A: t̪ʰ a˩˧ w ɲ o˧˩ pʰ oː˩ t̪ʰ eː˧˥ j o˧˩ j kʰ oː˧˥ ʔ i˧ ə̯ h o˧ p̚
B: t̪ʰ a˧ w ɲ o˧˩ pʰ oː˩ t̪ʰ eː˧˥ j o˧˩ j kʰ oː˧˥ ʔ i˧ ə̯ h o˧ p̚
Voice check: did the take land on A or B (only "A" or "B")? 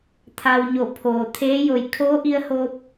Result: B